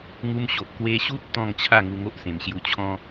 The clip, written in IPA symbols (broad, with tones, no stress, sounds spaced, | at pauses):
ŋ u˧ m ɕ o˨ ʔ k w e˧ ɕ u˦ t̚ t̪ ɔ̃˥˧ ŋ t͡ɕʰ a˥˧ ŋ u˧ ŋ o˦ ʔ s ẽ˨˩ m ɕ j u˧ t͡ɕʰ ɔ̃˦